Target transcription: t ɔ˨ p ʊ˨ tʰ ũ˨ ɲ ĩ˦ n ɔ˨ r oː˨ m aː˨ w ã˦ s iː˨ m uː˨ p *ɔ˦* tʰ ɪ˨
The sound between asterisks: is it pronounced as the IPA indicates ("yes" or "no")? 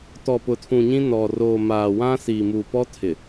yes